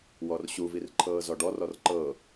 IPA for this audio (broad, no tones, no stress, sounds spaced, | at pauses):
w ɔ r ɕ u v i r ǃʰ ɤː z ɔ ɖ ɔ r ɔ r ǃ ɤ